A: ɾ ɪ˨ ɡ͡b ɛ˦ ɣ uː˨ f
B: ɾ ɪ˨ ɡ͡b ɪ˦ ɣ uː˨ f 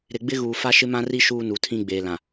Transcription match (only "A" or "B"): B